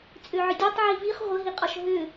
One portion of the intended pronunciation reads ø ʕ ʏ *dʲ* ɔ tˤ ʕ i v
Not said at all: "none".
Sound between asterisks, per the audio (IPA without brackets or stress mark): dʲ